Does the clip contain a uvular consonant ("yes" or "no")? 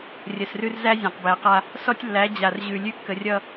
yes